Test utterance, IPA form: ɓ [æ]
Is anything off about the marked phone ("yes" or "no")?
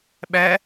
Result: no